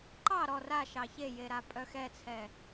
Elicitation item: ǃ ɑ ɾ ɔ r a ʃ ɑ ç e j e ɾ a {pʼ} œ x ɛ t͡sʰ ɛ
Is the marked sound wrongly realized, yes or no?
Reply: no